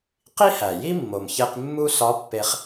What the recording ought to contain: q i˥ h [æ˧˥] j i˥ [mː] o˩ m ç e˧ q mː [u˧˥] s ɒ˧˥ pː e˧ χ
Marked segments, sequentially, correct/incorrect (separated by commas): incorrect, correct, incorrect